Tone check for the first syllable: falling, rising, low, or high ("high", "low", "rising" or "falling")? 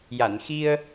low